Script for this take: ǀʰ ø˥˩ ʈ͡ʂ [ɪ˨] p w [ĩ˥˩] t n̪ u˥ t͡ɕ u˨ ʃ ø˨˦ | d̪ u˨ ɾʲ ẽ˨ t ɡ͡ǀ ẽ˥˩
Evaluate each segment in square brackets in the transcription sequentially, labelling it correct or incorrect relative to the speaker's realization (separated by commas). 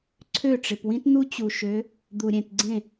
correct, incorrect